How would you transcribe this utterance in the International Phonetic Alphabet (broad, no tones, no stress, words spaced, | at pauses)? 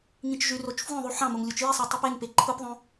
ŋĩt͡ʃʒyrot͡ʃ fwõðˤu ħɑ̃moŋ lʲut͡ʃjisˤi tˤepeŋpe ǃʰɯpðˤõ